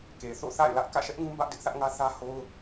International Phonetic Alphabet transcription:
k e˨ θ o̰˦˨ θ a̰˦˨ ɪ̯ l ä˦ ʔ k ä̰˦˨ ʃ ɛ˦ ʔ ŋ ũ˦ b ä˦ ʔ d ɪ˦ ʔ θ ä˦ ʔ ŋ ä˦ θ ä˦ h o˦ ʊ̯

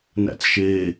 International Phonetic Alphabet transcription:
n æ̰ t͡s ʃ eː

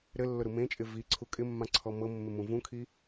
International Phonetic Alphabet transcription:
ɾ ɘ lː ʊ ɾ u m ẽ t͡ʃʼ ɪ v i ǀʰ u kʼ ɪ mː ã ǀʰ ɔ m ɤ mː ɪ m ũ v ũ kʰ i

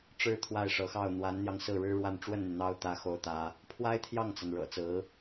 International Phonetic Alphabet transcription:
ʈ͡ʂ ɻ̩˥ t̪ʰ w a˥˩ ɪ̯ ʂ ɤ˧˥ x ɑ˥˩ ʊ̯ n̪ w a˧˥ n n̪ j ɑ˧ ŋ s ɹ̩˥˩ ɻ ɻ̩˥ ɻ w a˥˧ n ʈ͡ʂ w ə˥˩ n n̪ y˩ n̪ ɑ˥ ʊ̯ t̪ ä˥ x o˥ ʊ̯ t̪ ä˥ | pʰ w a˥ ɪ̯ t̪ʰ j ɑ˥˩ ŋ t͡s a˩ n ɻ ɤ̰˨˩ t͡s ɹ̩˧˥

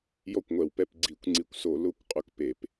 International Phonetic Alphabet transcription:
j ɔ˥˨ kʷ ŋʷ ɛ˧˩ w p ɛ˥˨ p ɡ͡ǀ i˧˩˧ kʷ ŋ͡ǀ i˧˩ kʷ s o˧˩˧ l ʊ˧˩˧ kʷ qʼ ʊ˧˩ k p e˧˩˧ p

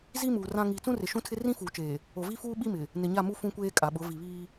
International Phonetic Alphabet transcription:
z i˦ m uː˨ r ã˦ ŋ iː˨ t͡s ũ˦ r ɪ˨ ʃ ũ˦ tʰ ɪ˦ r ĩ˦ f uː˨ t͡ʃ eː˨ | o˨ v i˦ f uː˦ ɓ i˦ m ɪ˨ | n ɪ˨ ɲ a˦˨ m u˦ f ũ˦ kʷ eː˦ kʼ a˨ ɓ ʊ˨˦ v i˨ β iː˦

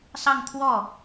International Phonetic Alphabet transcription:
s ɑ˥˧ ŋ t̪ʰ w ɔ˥˩

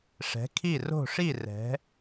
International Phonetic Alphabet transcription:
ʂ ɛ̤˩˧ kʰ i˧˩ r o̤˧˩ ʂ i˧˩ r ɛ̤˩˧

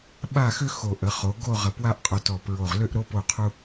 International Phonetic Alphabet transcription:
ɓ a˥˧ x ʏ˥ x o˧˩ ʔ ə˩˧ χ o˩˧ ɡ o˥˧ ʁ ə˧˩ p w a˥ ʔ qʼ o˧ t ɔ˧˩ p ɹ o˧˩ ʁ l ʏ˥˧ ʔ ɾ o˥ p o˥˧ qʰ u˥

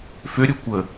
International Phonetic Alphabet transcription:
f ø ɾʲ o kʷ ə

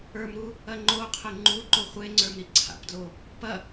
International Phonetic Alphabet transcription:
ə˞ m ɾ u | ɐ ŋ͡ǃ o qʰ ə ŋ͡ǃ u ǃ o χʷ e ŋ͡ǀ ə˞ m ɾ i ǀʰ a̰ p d l o | p ɐ

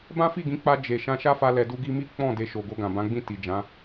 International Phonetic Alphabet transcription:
b ã˦ f i˦˨ ɡ ĩ˨˦ k͡p a˧ d͡ʒ e˨ ʃ ã˧ ʃ a˦ f a˧ l ɛ˨ d u˧ ɡ i˧ m i˦ k͡p ɔ̃˦˨ d e˧ ʃ o˨ ɡ o˧ ɡ ã˨ b ã˨˦ ɡ͡b ĩ˦˨ t i˨ d͡ʒ ã˨˦

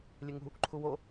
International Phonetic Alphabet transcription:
lʲ e ŋ ṳ | ǃʰ u w o

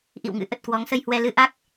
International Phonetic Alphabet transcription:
ʔ ḭ˧˨ w ŋ ɨ̰˧˥ ʔ ə˨˩ t̚ k w ɔ˨˦ ŋ s ə˧ j h w ɛ˧ l ɨ˧ ʔ a˦˥ k̚

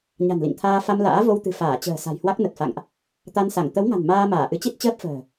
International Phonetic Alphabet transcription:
ɲ a̤˨˩ n l ḭ˧˨ ŋ t̪ʰ aː˧ f a˧ m l a̰ː˧˥ v o˧ w t̪ ɨ̤˨˩ f aː˧˩ t͡ɕ ə̤ː˨˩ s a̤˨˩ j h w a˦˥ k̚ n ə˨˩ t̚ f a̰˧˨ ŋ ʔ | t̪ a˧ n s a˧˩ ŋ t̪ ə˨˦ w ŋ a̤˨˩ n m aː˧ m aː˧˩ ʔ ɨ˨˦ t͡ɕ i˦˥ t̚ t͡ɕ əː˦˥ p̚ f ə̤ː˨˩

